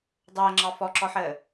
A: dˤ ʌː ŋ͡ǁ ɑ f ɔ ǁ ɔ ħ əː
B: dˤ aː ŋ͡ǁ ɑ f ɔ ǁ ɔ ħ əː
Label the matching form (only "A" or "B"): A